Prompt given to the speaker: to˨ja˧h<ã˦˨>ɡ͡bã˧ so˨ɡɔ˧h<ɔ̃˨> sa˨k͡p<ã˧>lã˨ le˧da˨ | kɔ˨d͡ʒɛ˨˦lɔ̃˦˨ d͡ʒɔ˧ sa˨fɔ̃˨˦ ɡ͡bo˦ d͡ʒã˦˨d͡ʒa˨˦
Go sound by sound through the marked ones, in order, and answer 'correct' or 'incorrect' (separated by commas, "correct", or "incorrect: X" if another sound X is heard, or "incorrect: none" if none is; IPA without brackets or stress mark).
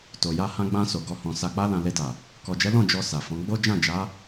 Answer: incorrect: ã˧, correct, incorrect: a˧